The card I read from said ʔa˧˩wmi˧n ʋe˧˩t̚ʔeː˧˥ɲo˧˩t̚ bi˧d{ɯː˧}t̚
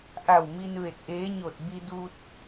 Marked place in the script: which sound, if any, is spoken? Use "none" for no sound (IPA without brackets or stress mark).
uː˧